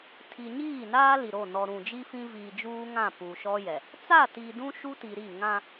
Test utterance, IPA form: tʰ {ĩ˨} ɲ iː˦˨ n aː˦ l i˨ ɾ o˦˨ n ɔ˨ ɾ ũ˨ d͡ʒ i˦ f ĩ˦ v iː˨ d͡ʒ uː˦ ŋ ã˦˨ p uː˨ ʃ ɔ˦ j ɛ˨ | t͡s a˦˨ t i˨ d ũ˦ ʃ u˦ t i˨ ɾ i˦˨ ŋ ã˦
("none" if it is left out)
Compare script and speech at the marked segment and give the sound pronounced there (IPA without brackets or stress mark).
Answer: i˨